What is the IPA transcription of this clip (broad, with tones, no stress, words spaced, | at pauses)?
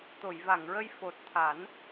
t̪o˨˩˨jva˨˩˨ŋɹə˧j fo˨˩t̚ t̪ʰa˨˩˦n